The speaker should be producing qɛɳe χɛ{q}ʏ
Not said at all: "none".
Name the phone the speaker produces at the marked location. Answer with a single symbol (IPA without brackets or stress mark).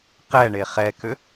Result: k